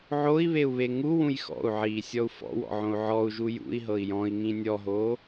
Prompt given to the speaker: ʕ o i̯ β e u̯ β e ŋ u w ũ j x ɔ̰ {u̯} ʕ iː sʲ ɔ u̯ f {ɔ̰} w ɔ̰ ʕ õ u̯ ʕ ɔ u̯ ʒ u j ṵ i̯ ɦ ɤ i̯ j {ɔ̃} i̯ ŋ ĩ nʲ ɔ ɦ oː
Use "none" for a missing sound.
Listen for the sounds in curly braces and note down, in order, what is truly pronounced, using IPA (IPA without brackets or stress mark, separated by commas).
u̯, ɔ̰, ɔ̃